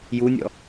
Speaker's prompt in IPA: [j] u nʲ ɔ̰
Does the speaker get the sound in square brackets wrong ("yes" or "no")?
no